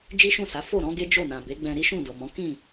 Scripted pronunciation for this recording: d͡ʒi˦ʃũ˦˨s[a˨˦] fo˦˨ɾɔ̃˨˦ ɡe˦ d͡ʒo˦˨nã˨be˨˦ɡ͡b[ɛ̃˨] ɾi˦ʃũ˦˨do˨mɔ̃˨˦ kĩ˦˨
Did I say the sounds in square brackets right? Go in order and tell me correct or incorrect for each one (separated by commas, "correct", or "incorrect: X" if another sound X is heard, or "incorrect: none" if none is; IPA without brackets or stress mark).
correct, incorrect: ɛ̃˧